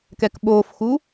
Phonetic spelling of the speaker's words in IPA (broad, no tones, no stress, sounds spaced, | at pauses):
k ɛ k ɓ oː f x u